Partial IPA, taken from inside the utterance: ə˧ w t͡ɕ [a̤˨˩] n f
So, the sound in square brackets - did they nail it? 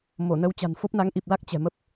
yes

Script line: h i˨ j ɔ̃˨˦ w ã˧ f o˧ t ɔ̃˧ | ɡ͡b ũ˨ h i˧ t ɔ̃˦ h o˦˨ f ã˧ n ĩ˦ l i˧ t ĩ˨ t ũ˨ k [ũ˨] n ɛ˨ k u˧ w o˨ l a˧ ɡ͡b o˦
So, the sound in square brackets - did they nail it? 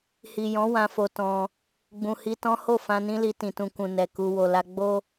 yes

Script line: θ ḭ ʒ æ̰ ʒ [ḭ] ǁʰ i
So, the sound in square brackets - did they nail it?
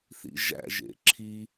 no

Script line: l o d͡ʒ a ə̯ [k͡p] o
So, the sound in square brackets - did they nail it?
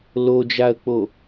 yes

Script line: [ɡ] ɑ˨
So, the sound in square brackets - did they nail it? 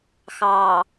no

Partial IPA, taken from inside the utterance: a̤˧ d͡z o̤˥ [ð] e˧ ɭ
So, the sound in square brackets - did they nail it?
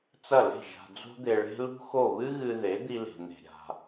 no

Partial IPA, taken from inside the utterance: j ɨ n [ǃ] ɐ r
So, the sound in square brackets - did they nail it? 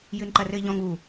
yes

